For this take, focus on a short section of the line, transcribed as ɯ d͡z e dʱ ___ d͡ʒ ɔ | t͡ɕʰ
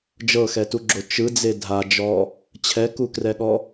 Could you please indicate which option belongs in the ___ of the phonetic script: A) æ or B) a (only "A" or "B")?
B